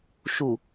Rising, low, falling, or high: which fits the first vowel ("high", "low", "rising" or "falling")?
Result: low